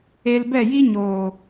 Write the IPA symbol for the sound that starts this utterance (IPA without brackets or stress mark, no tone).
e